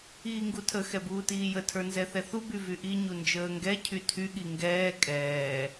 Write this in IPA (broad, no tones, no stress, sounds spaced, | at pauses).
iː ŋ ɡ u tʰ ə x ɛ b uː t iː j ə tʰ ə˞ n z ɛ θ ɛ θ u b y v y ʔ i ɲ u n d͡ʒ əː ŋ ɡ ɛ cʰ y tʰ y ɠ i ŋ ɡ ɛː kʼ ɛː